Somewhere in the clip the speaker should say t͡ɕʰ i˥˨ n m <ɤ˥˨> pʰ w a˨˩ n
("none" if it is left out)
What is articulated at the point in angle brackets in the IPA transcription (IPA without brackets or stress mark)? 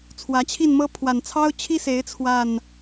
ɤ˦